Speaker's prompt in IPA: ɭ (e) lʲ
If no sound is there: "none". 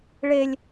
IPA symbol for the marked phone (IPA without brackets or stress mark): e